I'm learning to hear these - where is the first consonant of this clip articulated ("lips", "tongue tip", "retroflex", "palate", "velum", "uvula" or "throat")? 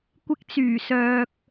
velum